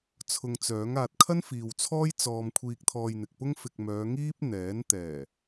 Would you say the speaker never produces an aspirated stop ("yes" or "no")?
no